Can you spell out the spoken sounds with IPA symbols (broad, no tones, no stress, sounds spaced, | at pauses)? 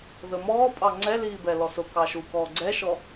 ð ə m ɔː pʼ ɑ ŋ͡ǀ ɛ l iː b ɛ l ɔ s ʊ k ɑ ʃ u k ɔː ɡ͡ǀ ɛ ʃ ɔ